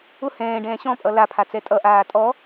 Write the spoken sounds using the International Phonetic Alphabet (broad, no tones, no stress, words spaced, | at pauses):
ʊ hɛ̃ːɖɛ̃ː ɕɔ̃pʼʌ lapʰat͡sɛ tʼʌʔaː tʼɔ